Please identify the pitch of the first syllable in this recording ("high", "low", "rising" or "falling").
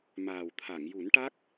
low